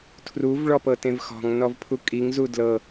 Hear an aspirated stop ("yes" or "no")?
yes